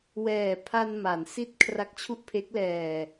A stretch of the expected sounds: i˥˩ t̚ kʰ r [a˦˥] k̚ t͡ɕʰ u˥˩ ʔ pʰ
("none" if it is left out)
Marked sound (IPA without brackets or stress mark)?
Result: a˦˥